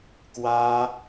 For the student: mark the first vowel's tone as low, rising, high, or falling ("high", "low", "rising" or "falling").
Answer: high